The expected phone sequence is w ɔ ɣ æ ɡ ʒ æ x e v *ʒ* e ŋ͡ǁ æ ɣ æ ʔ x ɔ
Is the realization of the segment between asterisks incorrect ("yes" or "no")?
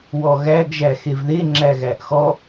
yes